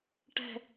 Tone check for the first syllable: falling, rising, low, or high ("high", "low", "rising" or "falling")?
falling